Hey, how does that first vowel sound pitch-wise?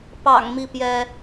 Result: low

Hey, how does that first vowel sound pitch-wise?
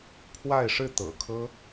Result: falling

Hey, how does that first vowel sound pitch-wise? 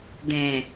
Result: low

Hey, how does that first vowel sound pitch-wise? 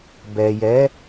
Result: low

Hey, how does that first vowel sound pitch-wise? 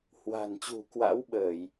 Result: low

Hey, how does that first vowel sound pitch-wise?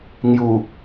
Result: low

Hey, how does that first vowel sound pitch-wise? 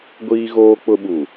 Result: high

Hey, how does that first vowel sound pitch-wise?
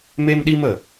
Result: high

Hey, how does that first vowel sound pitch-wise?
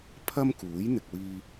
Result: high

